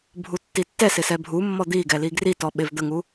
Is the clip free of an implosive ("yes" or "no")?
no